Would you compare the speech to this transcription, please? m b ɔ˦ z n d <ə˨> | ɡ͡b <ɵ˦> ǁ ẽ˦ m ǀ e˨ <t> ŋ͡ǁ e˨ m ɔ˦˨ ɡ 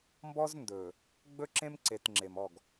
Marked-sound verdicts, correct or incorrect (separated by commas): incorrect, correct, correct